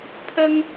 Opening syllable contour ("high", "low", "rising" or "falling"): high